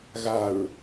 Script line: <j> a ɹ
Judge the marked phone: incorrect: ɣ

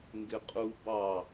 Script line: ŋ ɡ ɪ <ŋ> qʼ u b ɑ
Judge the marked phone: incorrect: none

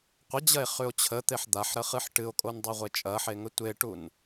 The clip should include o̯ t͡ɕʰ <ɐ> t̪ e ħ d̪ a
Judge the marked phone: incorrect: ə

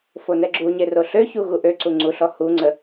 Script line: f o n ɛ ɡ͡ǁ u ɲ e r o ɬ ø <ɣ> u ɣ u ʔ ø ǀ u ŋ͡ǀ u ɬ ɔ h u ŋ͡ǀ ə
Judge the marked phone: incorrect: ç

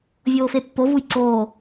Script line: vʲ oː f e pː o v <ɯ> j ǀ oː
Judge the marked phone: incorrect: u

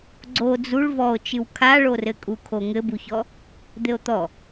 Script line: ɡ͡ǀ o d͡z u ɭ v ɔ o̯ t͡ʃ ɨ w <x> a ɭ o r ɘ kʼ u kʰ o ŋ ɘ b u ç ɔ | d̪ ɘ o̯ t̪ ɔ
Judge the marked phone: incorrect: kʰ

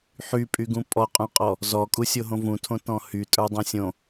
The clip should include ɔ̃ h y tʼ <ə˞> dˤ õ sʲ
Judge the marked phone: correct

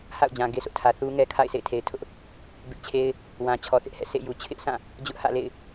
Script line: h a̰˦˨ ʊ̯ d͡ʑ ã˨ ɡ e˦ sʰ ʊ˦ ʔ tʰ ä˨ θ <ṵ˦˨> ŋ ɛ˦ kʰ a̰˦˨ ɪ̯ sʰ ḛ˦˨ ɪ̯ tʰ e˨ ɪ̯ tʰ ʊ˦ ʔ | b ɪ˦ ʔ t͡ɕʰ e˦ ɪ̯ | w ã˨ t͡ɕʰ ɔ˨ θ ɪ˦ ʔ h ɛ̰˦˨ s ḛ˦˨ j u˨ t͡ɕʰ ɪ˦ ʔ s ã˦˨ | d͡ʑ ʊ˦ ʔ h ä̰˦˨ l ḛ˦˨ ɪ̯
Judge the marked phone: incorrect: u˦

